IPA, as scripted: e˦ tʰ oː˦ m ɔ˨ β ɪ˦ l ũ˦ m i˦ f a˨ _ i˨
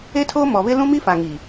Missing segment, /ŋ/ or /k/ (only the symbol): ŋ